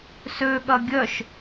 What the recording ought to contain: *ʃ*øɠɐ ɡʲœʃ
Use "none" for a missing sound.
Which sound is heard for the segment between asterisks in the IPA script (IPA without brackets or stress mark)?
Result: s